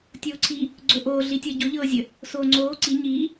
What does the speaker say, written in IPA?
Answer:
tʲ oː ǀʰ i | ɡ͡ǀ o ʔ oː ɮ i tʲ ɤ ɟ o ʎ ɤː zʲ ə | s oː ŋ͡ǀ oː ǀ i ɲ iː

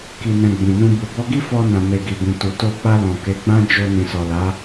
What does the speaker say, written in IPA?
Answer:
k i˨ n ɛ̃˨ ɡ͡b ĩ˨ n ũ˧ b u˨ b ɔ˧ ɡ i˦ f ɔ˧ n ã˨ m e˨ ɡ i˨ b ĩ˨ t u˨ t o˧ k͡p a˧ l ɔ̃˨ k e˨˦ ɡ͡b ã˦ d͡ʒ o˧ n ĩ˨ s ɔ˨ l a˨˦

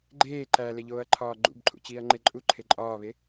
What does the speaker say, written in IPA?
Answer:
ɡ͡ǃ eː ǃ æ l e ʎ oː ɐ̯ ǃʰ ɒː ɡ͡ǃ ṵ b ǃʰ ṵ t͡ɕ iː ɐ̯ ŋ͡ǃ e ǃʼ u ǃʰ e ǃʼ ɒː β e

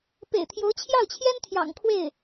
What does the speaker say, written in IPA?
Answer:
p ḛ˨˩ ɪ̯ t̪ʰ j o˧˥ ʊ̯ t͡ɕʰ j ɑ˥˩ ʊ̯ t͡ɕʰ j ɛ˥ n t̪ʰ j ɑ̰˨˩ ŋ kʰ w e˥˩ ɪ̯

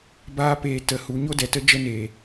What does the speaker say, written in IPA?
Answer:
b aː˦ p eː˧ t ə˧ h u˨˦ ɲ o˦ d ɛ˨ t ə˦ d͡ʒ ə˦ n eː˨

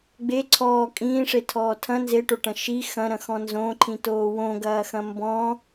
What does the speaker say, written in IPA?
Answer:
ɡ͡b e ǀʰ ɔː kʼ ĩː ʂ e tʰ ɔː tʰ ɐ̃ n z e ʈ o ʈ ɐ̃ ʃ i x ɐ̃ ɾ ɐ̃ x ɔ̃ n z õ ǃʰ ĩ t oː w õ ɡ ɐː x ɐ̃ m b ɔ̃

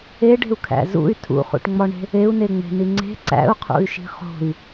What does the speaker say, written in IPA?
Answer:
e ɖ e̤ u̯ kʰ æ̰ z ṵ y̯ tʰ ṵ χ ṵ ʈ ŋ͡m ɒ ɳ e̤ | e u̯ n e ŋ͡m e̤ n i ŋ͡ǀ e̤ ǀ æ̰ u̯ qʰ ṵ y̯ ʃ i̤ χ o̤ i̯

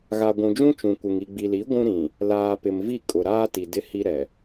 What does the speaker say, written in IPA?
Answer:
ɣ a˨ ɡʷ ũ˨ d͡ʒ ũ˦ t͡ʃ ũ˨ kʷ ɪ˨ ŋ i˨ ɡ͡b i˨ l i˨˦ ɡʷ ũ˦ ɾ ĩ˨ | l aː˨ p ɪ˨ m v i˦˨ kʼ ʊ˨ ɾ aː˦ t i˨ d ɪ˦ h i˦ ɾ ɛ˨

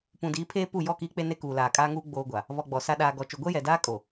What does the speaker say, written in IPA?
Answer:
p ũ˨ d iː˨˦ pʰ eː˦ p u˦˨ j ɔ˦˨ k iː˦ k͡p e˦ n e˦ k uː˨ l aː˨ kʼ aː˦ ŋ uː˦ ɡ͡b oː˦ ɡʷ a˨ | β ɔ˨ ɡ͡b ɔ˨ s a˨ ɗ aː˨ ɡ ɔ˨ t͡ʃ o˨ ɡʷ ɛ˦ j ɛ˨ d aː˦ kʼ o˨

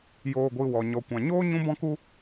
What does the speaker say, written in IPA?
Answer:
j oː˨ ɡʷ ɨ˨ w ɔ˨ ɲ ɔ˨ kʷ ã˨ ɲ oː˦ ɲ ũ˦ b ɔ̃˦ k u˦

